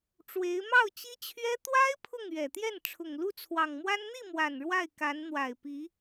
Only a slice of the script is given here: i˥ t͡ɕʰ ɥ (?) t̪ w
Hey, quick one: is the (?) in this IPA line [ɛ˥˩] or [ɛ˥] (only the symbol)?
ɛ˥